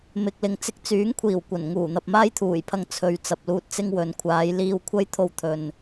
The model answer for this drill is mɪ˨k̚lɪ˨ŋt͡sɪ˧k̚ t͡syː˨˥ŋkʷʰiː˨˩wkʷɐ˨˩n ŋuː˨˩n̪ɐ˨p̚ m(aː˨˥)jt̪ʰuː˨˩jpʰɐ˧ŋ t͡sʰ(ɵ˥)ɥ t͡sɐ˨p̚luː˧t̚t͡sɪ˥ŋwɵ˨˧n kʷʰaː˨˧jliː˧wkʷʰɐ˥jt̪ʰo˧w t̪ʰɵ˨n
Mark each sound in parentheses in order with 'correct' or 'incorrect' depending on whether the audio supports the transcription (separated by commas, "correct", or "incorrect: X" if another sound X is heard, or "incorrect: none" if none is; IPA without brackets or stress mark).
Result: incorrect: aː˥, incorrect: ɵ˨